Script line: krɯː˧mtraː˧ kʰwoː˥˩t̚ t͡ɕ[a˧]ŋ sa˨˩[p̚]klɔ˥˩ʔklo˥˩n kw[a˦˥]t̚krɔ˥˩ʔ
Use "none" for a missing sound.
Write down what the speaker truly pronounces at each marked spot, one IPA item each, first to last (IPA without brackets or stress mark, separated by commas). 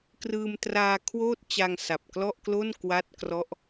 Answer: a˧, p̚, a˥˩